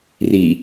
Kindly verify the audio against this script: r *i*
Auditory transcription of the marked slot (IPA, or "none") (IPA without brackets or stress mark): i